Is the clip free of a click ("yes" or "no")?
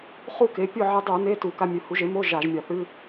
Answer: yes